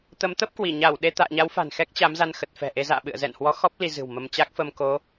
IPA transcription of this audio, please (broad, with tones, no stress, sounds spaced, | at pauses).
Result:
t̪ ə˨˦ m t̪ ə˦˥ p̚ k w i˧˩ ɲ aː˧˩ w ɗ e˧ t̪ a̰ː˧˨ ɲ a˨˦ w f a̤˨˩ n x ɛ˦˥ k̚ t͡ɕ a˨˦ m z a˧ n x ə˨˩ t̚ f ɛ̤˨˩ ʔ e˧ z a̰ː˧˨ ɓ ɨ̰˧˨ ə̯ z ɛ̰˧˨ n h w ɔ˨˦ x ɔ˦˥ p̚ l i˧ z ɨ̤˨˩ w m ə˧ m t͡ɕ a˦˥ k̚ f ə˧ m k o˨˦